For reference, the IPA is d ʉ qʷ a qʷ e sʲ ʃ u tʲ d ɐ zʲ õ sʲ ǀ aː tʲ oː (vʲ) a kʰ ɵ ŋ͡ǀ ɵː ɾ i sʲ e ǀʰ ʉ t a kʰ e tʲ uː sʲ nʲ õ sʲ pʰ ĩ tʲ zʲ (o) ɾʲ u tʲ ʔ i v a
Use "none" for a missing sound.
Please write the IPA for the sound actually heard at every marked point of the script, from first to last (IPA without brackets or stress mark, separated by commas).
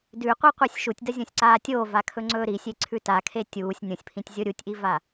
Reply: v, o